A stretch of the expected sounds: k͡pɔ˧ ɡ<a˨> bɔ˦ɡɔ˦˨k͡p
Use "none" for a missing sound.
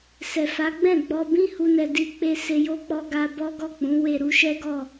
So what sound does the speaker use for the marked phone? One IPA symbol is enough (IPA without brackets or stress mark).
a˧